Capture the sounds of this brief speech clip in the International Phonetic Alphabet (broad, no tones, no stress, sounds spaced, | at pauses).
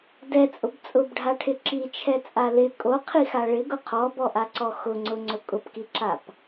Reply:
d ɛ t͡sʼ ʊ b t͡sʼ ʊ b ɖʱ a ʈʰ ɪ ǁ i t͡ʃʰ ɛ t͡sʼ a l ɪ kʼ o qʰ i x a ɭ ɪ ɡ ʊ qʰ ɔ b ɔ ʔ a ǀ ɔ x ʊ ŋ͡ǀ ʊ ŋ͡ǀ ʊ kʼ ʊ p k i ǁ a p